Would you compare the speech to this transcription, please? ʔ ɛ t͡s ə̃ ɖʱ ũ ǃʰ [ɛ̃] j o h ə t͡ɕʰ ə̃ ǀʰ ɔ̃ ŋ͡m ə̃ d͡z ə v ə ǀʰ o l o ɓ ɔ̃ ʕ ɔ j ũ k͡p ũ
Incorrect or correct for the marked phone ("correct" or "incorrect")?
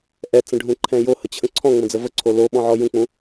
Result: correct